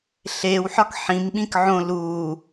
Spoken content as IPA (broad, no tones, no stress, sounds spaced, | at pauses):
ɬ eː w ħ ɒ k ħ ĩ m ɓ ĩ k ʕ õ l uː